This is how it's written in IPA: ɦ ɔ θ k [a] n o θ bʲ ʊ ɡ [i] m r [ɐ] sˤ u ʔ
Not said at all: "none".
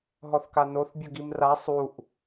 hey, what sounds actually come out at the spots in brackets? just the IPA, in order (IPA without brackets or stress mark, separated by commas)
a, i, a